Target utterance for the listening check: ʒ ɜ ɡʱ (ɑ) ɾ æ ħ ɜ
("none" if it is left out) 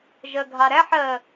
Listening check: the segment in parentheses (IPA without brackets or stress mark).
ɑ